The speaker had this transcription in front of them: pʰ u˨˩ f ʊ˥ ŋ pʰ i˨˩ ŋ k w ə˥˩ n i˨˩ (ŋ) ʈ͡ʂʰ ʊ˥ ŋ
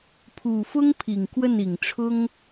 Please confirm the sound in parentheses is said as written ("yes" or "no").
yes